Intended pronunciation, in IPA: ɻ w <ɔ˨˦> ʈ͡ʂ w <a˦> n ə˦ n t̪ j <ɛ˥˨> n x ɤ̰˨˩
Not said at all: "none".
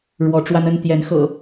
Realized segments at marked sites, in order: ɔ˨˦, a˦, ɛ˨˦

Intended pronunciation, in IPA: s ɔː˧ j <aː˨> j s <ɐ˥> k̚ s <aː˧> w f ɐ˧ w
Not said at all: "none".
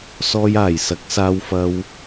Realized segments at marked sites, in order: aː˨˩, ɐ˨˥, aː˧

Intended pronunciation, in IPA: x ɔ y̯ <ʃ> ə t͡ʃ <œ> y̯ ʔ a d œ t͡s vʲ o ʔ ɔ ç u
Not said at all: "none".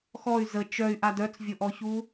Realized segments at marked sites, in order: z, œ

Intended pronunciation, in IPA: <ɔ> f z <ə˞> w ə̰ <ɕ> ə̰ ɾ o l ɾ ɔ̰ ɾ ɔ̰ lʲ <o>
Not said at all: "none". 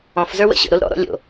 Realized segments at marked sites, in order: ɔ̃, ə˞, ɕ, o̰

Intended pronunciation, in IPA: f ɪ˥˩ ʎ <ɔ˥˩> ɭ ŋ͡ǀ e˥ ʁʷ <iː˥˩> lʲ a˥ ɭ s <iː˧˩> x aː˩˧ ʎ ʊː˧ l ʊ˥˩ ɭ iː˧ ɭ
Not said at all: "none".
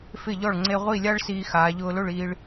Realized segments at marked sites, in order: ɔ˥˩, i˥˩, iː˧

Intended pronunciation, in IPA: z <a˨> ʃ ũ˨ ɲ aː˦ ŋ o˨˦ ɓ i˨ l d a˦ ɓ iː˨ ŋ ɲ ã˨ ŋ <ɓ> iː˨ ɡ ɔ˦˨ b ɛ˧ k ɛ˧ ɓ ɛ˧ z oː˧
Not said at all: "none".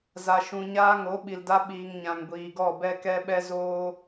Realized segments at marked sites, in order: a˨, ɡʷ

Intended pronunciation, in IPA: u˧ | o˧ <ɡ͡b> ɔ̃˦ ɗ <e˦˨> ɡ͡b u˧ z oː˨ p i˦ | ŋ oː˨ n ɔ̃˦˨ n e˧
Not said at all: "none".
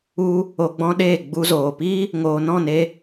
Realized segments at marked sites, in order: ɡ͡b, e˦˨

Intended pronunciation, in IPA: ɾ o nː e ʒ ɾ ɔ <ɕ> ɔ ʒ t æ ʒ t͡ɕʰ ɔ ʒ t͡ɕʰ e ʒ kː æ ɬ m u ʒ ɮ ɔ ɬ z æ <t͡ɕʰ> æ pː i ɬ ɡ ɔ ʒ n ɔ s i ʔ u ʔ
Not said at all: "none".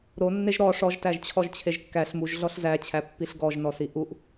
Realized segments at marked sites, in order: ʂ, t͡ɕʰ

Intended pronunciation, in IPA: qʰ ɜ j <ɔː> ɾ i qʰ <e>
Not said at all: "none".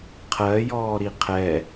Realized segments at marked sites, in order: ɔː, ɛ

